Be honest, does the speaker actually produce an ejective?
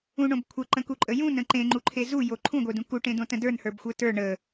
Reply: yes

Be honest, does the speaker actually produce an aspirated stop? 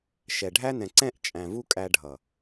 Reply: no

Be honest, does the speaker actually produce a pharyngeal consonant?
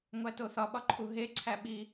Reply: no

